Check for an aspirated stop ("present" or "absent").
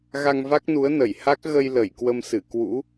absent